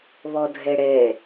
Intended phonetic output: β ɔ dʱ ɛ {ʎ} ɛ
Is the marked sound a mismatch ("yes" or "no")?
yes